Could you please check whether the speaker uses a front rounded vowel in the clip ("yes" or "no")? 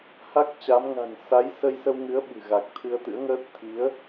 no